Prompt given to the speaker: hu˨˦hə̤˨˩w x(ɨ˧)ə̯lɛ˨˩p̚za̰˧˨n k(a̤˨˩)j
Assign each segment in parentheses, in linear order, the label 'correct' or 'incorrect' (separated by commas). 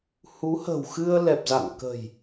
correct, incorrect